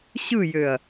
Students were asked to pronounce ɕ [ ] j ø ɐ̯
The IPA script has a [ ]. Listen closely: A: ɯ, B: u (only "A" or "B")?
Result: A